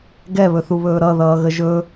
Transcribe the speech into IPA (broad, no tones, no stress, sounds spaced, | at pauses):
ɡ ɛ β ɵ θ u β ɵː ɾ ʌ ð ʌː ɣ ə ʒ ɵ